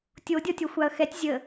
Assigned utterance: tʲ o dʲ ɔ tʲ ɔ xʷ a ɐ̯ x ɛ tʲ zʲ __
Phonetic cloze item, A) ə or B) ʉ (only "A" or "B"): A